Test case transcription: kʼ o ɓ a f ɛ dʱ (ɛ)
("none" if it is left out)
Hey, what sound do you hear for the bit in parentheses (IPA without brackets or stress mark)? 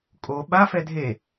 e